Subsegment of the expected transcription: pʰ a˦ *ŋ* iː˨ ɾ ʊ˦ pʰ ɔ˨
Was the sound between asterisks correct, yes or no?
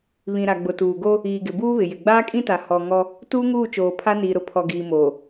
no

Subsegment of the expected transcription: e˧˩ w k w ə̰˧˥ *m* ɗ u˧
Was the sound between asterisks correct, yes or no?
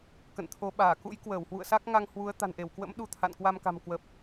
yes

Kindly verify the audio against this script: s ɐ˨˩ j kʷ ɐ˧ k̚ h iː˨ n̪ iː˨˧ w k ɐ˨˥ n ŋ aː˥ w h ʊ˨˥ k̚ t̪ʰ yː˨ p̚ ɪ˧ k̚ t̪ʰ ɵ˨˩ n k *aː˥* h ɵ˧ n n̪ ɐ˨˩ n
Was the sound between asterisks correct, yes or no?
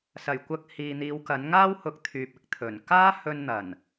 yes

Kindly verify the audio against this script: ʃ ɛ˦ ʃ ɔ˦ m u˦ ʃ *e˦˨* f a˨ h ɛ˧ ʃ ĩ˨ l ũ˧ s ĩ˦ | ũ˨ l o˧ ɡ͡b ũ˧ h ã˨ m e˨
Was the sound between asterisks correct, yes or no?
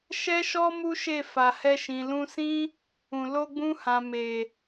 yes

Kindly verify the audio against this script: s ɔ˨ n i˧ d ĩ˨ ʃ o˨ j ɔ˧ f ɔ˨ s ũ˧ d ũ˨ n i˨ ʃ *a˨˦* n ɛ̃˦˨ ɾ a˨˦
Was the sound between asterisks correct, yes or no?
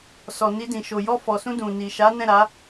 yes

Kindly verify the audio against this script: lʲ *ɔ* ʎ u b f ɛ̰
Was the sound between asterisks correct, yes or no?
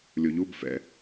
no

